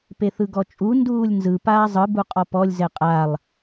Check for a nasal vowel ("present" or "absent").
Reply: absent